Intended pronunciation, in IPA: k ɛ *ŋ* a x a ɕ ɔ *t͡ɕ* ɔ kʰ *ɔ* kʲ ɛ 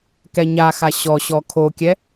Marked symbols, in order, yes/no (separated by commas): no, no, no